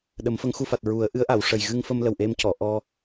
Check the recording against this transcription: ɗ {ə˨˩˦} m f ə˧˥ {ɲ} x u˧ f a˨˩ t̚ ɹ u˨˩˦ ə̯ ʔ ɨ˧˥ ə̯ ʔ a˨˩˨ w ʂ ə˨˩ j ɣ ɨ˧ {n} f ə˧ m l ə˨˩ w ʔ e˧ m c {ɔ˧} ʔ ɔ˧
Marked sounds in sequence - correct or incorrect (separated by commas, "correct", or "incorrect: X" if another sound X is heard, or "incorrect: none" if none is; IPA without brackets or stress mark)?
correct, incorrect: ŋ, incorrect: ŋ, incorrect: ɔ˨˩˨